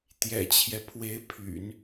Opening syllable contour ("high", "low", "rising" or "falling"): low